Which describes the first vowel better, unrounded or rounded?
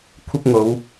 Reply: unrounded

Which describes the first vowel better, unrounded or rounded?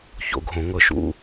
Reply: rounded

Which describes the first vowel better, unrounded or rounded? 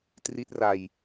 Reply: unrounded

